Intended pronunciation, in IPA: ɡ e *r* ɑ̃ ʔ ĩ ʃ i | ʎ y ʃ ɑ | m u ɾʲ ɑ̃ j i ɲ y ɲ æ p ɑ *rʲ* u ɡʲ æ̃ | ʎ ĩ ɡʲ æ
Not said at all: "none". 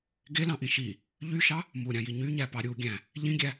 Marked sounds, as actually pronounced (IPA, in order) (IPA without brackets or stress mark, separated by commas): l, ɾʲ